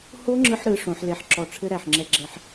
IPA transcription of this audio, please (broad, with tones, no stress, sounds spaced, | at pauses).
h o˦˥ ŋ͡ǁ ɯ˧ ħ ɾ ɯ˩˧ ʂ õ˩˧ ħ l e˨˩ ħ ǁ ɔ˨˩ ʈ͡ʂʰ ɘ˦˥ ɾ æ˨˩ ħ ŋ͡ǁ ɛ˧ ɡ͡ǁ ɛ˧˩˧ ħ